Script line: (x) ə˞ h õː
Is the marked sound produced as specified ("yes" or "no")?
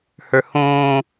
no